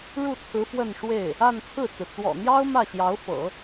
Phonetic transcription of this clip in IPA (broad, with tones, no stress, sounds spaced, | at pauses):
ɻ u˥˩ t͡sʰ ɹ̩˧˥ f w ə˥˧ n ʂ w e˥˩ ɪ̯ | a˥˧ n t͡sʰ ɹ̩˥˩ t͡s ɹ̩˩ t͡s w ɔ̰˨˩ n̪ j ɑ˥ ʊ̯ m ä˥˩ ɕ j ɑ˧˥ ʊ̯ f ɤ̰˨˩˦